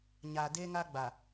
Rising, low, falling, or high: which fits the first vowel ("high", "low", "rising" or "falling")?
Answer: low